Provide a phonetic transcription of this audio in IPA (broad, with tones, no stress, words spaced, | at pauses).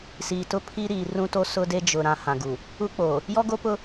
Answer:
siː˨tʊ˦pʰi˦ ɾiː˨ rũ˦to˦ sʊ˦de˦ d͡ʒʊ˨ɾã˨ hã˨ɡu˨ | u˦k͡po˨ | jɔ˦ɡo˦pʊ˦